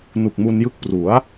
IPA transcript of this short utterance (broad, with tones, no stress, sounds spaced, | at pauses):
n u˨˩ k̚ m u˧ n j ɯ˦˥ k̚ p r u˩˦ a̯